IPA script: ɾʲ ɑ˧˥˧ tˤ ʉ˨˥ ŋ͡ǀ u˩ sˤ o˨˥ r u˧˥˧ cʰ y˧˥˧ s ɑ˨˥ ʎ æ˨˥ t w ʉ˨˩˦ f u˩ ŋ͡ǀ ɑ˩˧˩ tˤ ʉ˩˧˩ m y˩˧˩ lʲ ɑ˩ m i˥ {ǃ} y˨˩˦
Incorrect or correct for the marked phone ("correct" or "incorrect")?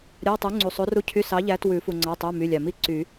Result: incorrect